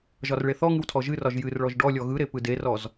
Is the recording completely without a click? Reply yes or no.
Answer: yes